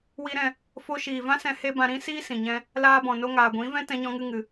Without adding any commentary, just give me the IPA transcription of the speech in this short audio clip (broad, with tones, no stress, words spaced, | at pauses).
wi˧ɾɛ̃˧ | fo˦ ʃiː˨vã˦ sɛ̃˦he˦ bã˧ɾĩ˦ siː˦sĩ˨ɲɛ̃˧ | laː˧bɔ̃˨ no˧ŋaː˨ɡʷĩ˨˦ vɛ̃˦tɛ̃˧ɲɔ̃˧ŋɨ˧ ŋɨ˨